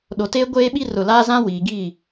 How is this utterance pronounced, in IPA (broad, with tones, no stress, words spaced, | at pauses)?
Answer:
ɗo˨teː˦ ɡʷeː˦ɓi˦rʊ˨laː˦ zã˦wiː˨ ɡiː˦˨